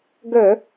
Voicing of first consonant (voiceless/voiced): voiced